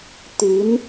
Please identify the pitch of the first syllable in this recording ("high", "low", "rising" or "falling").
rising